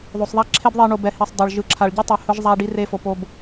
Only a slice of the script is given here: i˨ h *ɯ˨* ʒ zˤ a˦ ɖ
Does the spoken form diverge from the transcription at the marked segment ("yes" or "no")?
yes